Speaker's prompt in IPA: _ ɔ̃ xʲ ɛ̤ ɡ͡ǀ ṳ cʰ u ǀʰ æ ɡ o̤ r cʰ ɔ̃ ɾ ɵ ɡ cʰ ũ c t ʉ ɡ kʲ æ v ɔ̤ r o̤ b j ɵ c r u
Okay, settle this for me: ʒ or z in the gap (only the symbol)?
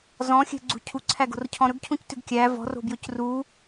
z